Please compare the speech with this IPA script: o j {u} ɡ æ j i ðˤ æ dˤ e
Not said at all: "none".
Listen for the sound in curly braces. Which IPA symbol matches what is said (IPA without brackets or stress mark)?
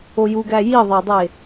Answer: u